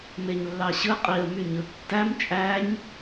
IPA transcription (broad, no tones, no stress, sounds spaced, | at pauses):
m e ɲ lː ɑ ɕ ɯ qʼ i ə̯ m y ɲ ɯ tː æ m t͡ʃʼ æ ɲ